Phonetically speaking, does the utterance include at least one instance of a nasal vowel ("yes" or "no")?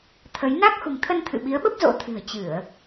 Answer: no